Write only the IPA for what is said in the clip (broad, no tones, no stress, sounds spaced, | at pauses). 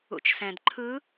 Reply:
ṵ t͡ʃ s ɛ̃ d ǃʰ ɯ